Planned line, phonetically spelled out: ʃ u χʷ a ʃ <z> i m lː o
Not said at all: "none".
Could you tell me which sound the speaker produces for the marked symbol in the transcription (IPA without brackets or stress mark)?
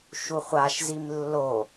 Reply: z